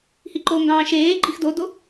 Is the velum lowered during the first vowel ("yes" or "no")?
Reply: no